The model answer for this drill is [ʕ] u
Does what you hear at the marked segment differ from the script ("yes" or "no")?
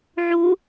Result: no